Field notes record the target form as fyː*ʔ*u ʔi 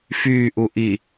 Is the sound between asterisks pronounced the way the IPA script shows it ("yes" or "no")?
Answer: yes